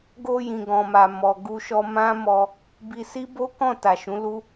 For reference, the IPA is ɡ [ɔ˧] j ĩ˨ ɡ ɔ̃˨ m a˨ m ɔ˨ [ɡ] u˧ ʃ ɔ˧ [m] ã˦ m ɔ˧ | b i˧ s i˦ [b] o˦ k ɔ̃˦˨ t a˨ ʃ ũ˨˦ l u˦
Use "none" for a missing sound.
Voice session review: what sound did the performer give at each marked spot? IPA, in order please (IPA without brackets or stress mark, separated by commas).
o˧, ɡ, m, b